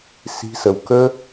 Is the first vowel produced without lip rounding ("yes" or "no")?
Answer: yes